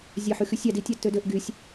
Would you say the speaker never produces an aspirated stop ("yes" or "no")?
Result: yes